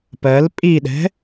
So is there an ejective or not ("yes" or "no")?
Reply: yes